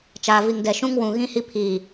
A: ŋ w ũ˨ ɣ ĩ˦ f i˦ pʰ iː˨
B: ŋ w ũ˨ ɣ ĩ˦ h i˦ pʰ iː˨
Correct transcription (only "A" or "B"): B